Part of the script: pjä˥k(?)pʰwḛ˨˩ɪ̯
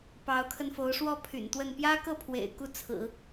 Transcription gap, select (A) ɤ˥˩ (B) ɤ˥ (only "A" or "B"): A